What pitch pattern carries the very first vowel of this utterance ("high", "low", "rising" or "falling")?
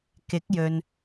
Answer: rising